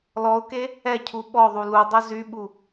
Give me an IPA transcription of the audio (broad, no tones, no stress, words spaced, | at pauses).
lɔʊ̯ke | ɛcʰu ɓɔðˤu lu dˤœzyɓu